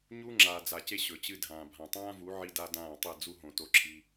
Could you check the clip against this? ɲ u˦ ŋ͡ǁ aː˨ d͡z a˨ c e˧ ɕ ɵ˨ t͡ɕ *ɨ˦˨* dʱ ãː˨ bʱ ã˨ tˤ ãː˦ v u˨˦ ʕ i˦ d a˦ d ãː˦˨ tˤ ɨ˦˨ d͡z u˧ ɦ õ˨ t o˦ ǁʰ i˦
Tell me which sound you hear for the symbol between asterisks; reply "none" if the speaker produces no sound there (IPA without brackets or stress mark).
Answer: ɨ˧